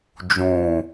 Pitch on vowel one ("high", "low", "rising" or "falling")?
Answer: low